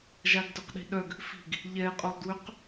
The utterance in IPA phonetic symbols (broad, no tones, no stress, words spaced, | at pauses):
ʒaɡdœqɗi̤ɗœɡ | fi̤ɡ | ʎɛqʼolˠdwøq